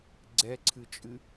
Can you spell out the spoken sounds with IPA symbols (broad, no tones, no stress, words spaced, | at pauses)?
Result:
ɡ͡ǀɛǀʰɨt͡ʃʼɨ